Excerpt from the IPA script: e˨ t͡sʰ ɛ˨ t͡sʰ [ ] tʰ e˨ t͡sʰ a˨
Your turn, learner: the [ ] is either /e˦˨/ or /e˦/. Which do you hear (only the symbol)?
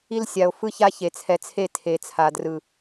e˦˨